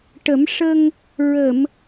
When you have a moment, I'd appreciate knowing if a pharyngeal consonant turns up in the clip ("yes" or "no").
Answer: no